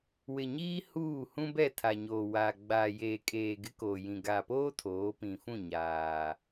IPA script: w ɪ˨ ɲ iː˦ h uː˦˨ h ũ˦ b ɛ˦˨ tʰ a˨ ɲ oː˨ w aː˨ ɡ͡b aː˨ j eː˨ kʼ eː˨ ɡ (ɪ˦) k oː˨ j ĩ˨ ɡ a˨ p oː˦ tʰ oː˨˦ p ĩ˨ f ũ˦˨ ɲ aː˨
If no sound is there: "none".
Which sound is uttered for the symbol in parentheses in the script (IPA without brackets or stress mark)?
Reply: ɪ˦